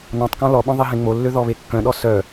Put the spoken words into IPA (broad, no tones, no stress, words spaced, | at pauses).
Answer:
nɔ̃tˤkɔ̃ lɔɓœ̃ ðˤiɦẽŋ͡molːø ðɔβekːœ̃ɗɔ sœ